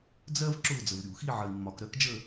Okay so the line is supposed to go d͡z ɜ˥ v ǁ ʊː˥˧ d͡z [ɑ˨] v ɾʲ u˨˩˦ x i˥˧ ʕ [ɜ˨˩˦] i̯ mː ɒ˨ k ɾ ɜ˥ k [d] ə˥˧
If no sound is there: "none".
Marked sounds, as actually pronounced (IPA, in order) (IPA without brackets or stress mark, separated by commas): ə˨, ɜ˨, d͡ʒ